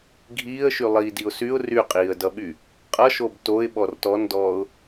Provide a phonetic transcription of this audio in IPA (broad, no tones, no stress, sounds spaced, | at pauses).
ɡʱ iː ə̯ ʃ y lˠ iː d i ʊ̯ s y ʊ̯ r y qʼ iː ə̯ d ʌ ɓ y | qʼ ʌ ʃ o b t o ɪ̯ ɓ ɔ r t ɔ n d ɔː ʊ̯